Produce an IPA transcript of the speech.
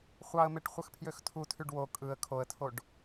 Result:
χʷ ɑ ə̯ m e ʈ χʷ ɯ x pʰ j ø x tʰ u tʰ y ɖ w o kʼ ɯ ə̯ kʰ o ə̯ tʰ o ɖ

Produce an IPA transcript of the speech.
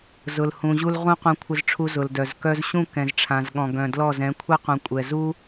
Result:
z ʊ˧ l h ũ˧ ʑ u˦ l ʁ ũ˦ q ũ˧ kʷʰ ə˧ z ʈ͡ʂʰ u˧ z ʊ˨ l d œ˨ z k œ˦ z ɕ ũ˦˨ k ɛ̃˨ z ʈ͡ʂʰ ã˨ z ɠ ɔ̃˨ ɡ œ̃˨ d l ɔ˦˨ z ɛ̃˨˦ kʷʰ a˦ q ũ˨ kʷʼ ɛ˨ z u˦

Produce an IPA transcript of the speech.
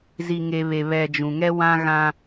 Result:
z i˨ ŋ e˨ β e˨ β ɛ˨ d͡ʒ ũ˨ ŋ ɛ˦ w ã˦ ɣ ã˦

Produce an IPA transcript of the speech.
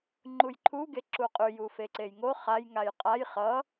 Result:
ŋ͡ǃ u j ǃʰ u ɡ e ǁ u qʼ ʉ j u f e ǀ e j ŋ o χ a j ŋ a j qʼ a j χ ʌ

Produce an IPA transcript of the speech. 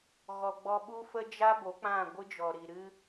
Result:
ɣ ɔ˨ ɡ͡b ɔ˧ ɓ u˦ f ə˦ d͡ʒ a˦ b o˨˦ k͡p ã˦˨ ɡʷ ɨ˦ d͡ʒ ɔ˨ ɾ i˨ ɾ ɨ˦

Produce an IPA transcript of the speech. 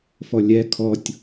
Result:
f ɔ lʲ ɛ kʰ ɔ tʲ

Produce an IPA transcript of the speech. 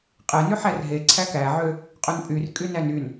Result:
qʼ e n ʉ ħ æ r ɦ e ǀʰ æ k æ ʕ ø | qʼ ʉ n pʼ y r kʼ y n æ n y n

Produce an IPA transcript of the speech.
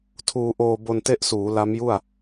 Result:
tʰ uː˧ ʔ oː˧ b o˧ n t e˦˥ ʔ s uː˩˦ l a˦˥ m j u˥˩ a̯

